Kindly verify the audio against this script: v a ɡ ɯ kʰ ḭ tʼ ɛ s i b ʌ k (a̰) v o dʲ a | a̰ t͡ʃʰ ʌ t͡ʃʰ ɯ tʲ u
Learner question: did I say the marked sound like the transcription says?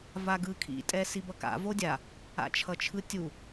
yes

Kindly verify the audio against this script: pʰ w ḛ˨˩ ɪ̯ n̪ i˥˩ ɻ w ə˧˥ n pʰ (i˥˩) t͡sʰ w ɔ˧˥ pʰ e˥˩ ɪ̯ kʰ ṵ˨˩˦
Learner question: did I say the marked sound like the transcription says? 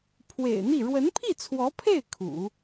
yes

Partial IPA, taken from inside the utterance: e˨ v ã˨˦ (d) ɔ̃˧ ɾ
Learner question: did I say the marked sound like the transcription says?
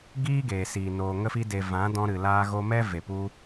yes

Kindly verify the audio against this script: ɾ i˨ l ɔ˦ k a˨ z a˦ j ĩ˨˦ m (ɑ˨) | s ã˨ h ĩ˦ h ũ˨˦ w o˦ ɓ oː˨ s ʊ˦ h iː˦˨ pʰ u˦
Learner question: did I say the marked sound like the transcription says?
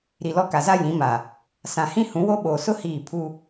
no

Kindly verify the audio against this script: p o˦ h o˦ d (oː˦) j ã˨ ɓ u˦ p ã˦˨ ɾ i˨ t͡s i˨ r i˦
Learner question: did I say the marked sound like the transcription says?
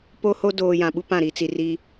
no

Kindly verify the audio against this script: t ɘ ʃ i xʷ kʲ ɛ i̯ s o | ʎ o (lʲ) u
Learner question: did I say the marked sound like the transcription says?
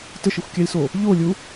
yes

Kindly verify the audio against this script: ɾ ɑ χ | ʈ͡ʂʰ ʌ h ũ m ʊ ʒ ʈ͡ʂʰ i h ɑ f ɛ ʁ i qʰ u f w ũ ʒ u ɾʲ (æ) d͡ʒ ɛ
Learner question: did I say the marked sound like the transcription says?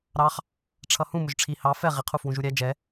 yes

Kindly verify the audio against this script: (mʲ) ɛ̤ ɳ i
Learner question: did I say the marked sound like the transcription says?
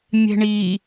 yes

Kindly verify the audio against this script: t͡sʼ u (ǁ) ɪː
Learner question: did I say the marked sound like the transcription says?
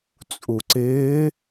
no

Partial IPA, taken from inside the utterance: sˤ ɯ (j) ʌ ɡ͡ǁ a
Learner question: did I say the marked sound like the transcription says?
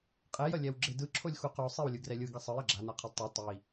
yes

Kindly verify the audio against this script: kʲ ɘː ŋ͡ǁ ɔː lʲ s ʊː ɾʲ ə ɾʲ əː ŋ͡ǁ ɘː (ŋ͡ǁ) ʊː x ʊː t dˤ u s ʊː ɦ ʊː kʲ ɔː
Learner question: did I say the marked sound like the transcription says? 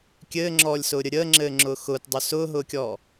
yes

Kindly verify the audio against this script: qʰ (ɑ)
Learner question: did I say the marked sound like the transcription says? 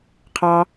yes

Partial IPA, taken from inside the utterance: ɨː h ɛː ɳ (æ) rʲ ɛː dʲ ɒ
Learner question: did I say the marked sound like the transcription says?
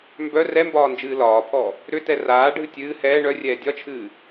no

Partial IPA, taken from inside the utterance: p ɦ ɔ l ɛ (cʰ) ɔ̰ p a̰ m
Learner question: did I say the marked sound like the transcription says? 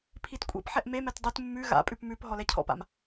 yes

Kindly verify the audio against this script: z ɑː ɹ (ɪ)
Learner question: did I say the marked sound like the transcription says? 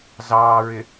yes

